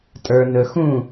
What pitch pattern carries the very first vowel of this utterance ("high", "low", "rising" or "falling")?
low